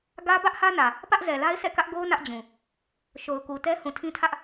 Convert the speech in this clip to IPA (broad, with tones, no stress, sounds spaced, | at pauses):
ɡ ä˦ b ä˦ ʔ h ä˦ n ä˨ | p ä˦ ʔ z ɛ˨ l a˦ ɪ̯ s ɛ̰˦˨ k ä˦ ʔ ɡ o˦ ʊ̯ n ä˦ ʔ d͡ʑ ũ˨ | ʃ o˨ ʊ̯ k u˨ t ɛ˦ h ũ˨ tʰ ĩ˦ tʰ ä˦ ʔ